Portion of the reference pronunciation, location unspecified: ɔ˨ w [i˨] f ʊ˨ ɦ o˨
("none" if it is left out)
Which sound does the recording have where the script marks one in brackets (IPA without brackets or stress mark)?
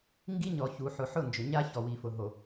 i˨